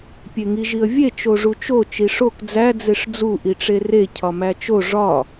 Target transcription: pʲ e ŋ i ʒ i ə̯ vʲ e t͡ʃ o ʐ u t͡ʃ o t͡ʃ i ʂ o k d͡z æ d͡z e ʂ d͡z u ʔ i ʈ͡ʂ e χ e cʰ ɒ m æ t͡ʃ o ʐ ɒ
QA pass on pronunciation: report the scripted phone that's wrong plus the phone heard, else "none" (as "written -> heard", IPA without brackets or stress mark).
χ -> r